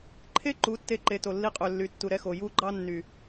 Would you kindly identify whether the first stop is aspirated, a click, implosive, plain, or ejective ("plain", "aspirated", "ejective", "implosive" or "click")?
click